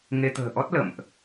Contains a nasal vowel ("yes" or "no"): no